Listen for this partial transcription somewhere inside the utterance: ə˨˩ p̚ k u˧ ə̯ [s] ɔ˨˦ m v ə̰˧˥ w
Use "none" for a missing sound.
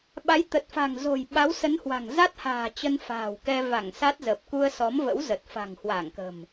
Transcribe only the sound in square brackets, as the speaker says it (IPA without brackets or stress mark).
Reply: s